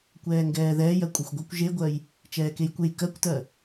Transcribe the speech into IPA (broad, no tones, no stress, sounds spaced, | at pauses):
kʷ ɛː ŋ ɡ ɛː ð ɛː j ɜ kʷʼ e xʷ ɡʷ ɤ kʷ ʒ e ɡʷ ɜ j | t͡ʃ ɛː k e j kʷ e j k ɜ kʷ t ɜ